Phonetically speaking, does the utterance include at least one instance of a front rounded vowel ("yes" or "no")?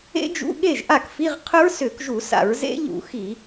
yes